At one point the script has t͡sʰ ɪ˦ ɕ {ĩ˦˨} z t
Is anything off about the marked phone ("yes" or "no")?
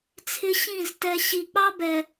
no